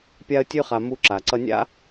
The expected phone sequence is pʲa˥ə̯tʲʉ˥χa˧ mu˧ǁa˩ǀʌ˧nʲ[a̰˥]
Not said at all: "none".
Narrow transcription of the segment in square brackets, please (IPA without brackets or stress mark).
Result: a̰˥